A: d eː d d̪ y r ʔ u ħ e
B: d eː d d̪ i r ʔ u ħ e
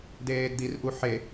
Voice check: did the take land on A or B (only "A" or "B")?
B